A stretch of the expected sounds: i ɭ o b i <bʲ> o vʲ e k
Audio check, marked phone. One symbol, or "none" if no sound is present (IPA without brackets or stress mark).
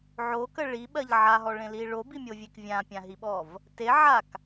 mʲ